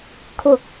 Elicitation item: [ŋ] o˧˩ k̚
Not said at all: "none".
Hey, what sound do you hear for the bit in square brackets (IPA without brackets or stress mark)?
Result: kʰ